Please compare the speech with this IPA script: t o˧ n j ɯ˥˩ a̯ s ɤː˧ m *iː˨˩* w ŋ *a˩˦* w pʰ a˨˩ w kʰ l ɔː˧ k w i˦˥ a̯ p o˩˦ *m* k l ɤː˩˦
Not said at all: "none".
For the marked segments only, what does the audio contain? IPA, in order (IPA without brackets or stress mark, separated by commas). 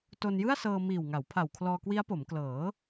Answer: iː˨˩, a˩˦, m